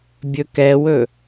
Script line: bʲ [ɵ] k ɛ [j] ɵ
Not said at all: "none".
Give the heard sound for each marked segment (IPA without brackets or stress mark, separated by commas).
ɵ, w